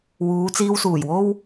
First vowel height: high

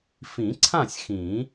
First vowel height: high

